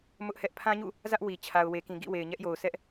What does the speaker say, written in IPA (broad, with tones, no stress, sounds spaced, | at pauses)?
m ʊ˦ ʔ h ɛ˦ ʔ pʰ ã˦ ɲ ṵ˦˨ | z ä˦ ʔ w i˨ t͡ɕʰ a˨ ʊ̯ w e˨ k ĩ˨ ɡ ḭ˦˨ w e˨ ɪ̯ ɲ ɛ˦ ʔ j o˨ ʊ̯ s ɛ˦ ʔ